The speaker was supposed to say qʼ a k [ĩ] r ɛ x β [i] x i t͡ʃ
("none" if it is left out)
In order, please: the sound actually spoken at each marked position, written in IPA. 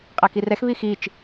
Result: i, i

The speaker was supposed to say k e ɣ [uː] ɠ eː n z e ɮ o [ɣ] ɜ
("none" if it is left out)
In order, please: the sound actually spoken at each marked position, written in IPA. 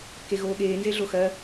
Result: oː, x

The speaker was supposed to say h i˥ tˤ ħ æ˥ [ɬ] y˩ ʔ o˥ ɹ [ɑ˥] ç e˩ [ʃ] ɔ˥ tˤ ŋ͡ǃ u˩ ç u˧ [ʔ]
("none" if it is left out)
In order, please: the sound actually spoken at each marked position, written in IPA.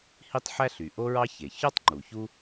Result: ɬ, ɑ˥, ç, none

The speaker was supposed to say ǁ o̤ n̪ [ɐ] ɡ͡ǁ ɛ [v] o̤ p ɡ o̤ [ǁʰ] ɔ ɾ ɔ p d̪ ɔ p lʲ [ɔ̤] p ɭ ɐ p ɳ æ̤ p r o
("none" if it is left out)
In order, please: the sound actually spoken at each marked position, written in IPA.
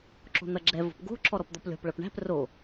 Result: ɐ, v, ǁʰ, ɔ̤

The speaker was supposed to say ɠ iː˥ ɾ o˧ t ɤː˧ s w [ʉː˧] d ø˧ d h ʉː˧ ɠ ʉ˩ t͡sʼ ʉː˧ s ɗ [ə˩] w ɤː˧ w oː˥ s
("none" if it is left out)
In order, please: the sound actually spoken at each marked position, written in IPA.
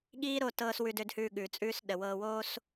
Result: ʉ˧, ə˩

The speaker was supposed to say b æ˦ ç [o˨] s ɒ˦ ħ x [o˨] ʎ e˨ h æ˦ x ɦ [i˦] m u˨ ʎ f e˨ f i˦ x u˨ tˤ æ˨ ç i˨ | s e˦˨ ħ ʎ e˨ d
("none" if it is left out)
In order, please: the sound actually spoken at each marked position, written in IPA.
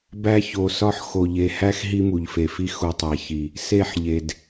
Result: o˨, o˨, i˦

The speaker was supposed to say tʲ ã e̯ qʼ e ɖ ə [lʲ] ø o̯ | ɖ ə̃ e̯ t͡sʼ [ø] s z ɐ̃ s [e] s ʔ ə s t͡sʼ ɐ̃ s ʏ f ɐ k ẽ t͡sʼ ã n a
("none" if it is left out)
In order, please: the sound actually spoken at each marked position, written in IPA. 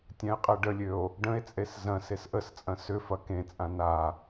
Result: lʲ, e, e

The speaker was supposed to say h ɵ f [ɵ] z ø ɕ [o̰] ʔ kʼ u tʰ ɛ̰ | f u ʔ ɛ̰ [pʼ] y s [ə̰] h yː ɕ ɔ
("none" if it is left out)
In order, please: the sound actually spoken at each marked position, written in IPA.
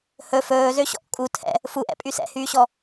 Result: ɵː, ɔ̰, pʼ, ɛ̰

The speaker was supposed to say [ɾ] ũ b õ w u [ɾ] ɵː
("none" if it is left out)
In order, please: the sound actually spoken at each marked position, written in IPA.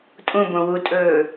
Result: tʼ, tʼ

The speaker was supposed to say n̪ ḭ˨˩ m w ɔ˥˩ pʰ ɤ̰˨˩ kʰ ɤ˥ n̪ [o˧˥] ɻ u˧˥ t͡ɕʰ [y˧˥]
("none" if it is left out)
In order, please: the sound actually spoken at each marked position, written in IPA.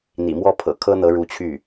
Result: ɤ˧˥, y˥˩

